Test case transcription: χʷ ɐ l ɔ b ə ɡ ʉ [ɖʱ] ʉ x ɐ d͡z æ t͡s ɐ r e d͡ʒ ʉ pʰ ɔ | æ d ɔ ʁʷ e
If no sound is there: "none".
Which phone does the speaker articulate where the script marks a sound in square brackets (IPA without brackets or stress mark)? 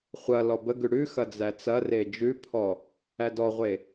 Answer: ɽ